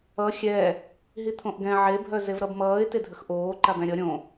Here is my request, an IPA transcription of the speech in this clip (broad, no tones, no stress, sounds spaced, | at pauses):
ʌ xʲ ɛ | ɦ i t̪ʰ õ ʔ ɡ ɛ̃ ʕ e bʱ œ z e v ɾ ʌ b m ʌː ɪ̯ t ɪ dʱ ə x ʔ oː ǃ a b ɛ̃ ɾʲ ʌ ɾʲ õ